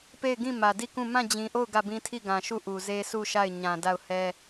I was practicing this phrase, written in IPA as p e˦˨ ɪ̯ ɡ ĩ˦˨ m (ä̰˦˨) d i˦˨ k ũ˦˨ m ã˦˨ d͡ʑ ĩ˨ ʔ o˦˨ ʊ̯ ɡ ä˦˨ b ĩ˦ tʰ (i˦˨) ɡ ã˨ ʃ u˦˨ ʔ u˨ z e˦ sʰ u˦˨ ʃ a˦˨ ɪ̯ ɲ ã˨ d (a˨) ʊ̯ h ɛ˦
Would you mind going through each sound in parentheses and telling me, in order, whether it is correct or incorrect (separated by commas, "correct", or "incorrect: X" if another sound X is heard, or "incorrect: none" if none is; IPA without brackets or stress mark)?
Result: incorrect: ä˨, correct, incorrect: a˦˨